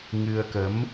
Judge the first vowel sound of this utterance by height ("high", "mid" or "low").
high